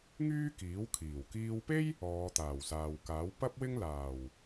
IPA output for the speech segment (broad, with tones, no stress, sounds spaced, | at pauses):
ŋ yː˥ k iː˨˥ w kʰ iː˨˩ w k iː˧ w p e˥ j | ɔː˨˧ t̪ aː˨˩ w s aː˨ w k aː˨˥ w p ɐ˥ p̚ w ɪ˥ ŋ l aː˨˩ w